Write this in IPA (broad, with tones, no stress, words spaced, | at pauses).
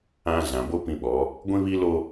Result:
ã˦ zã˨bo˦ pĩ˦ɓɔ˨˦ | ɡʷĩ˦βiː˦lo˦